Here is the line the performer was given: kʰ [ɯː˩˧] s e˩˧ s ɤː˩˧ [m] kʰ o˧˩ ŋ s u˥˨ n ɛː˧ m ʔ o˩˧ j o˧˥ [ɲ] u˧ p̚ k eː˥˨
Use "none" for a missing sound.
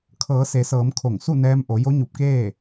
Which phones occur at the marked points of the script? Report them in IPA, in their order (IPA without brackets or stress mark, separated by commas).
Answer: ɤː˩˧, m, ɲ